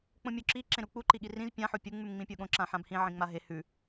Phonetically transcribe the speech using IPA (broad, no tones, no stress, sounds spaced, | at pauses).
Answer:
k͡p õ mʲ o ǁ i ǁ ẽ ɾ u k͡p u ǃ i ɠ i r ĩ z pʲ ã ħ o pʲ u ŋ͡m ʉ m ŋ͡m ĩ pʲ o ɠ õ ǁ ã ħ ã b h ĩ ʕ ĩ ŋ͡m a ɦ e h ʉ